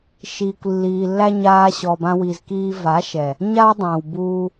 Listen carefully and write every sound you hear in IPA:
ʃiː˨kʷlːiː˨lːæ˦ ɲaː˧ɕɔ˨bã˧wi˨z kiː˧va˨˦ʃɛ˨ | ɲa˦wdˤæ̃˨wbuː˧

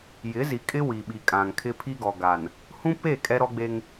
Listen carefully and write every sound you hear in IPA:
jɪ˨˦zi˨kʼɪ˦ wi˨ɓi˨ kʼã˨ŋkʰɪ˦ pʰi˦ɡɔ˨ɡa˨n | hũ˦pe˦˨ kʼɛ˦ɾɔ˦ɡ͡be˦ŋ

